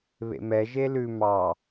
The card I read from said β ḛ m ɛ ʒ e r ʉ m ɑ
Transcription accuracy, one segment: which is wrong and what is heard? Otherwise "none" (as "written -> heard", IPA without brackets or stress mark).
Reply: r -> l